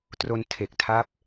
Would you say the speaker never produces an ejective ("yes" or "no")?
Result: yes